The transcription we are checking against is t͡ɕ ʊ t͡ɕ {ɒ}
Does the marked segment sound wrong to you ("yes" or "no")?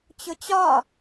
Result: no